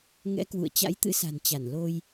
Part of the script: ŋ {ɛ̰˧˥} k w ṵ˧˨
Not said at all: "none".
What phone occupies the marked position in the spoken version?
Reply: ɛ̰˧˥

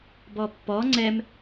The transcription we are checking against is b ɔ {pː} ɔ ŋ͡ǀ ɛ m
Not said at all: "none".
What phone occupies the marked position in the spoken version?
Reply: pː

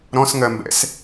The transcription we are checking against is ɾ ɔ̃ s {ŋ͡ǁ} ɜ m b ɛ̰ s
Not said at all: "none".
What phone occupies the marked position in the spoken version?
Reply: ŋ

